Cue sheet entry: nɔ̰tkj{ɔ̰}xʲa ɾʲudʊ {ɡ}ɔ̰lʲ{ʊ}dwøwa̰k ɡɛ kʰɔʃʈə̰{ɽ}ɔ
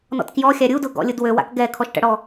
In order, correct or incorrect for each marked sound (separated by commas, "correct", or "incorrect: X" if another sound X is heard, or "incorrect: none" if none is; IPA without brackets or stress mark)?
incorrect: ɔ, correct, correct, correct